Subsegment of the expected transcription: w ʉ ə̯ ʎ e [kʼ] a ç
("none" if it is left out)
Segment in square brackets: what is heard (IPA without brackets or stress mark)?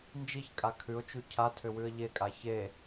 kʼ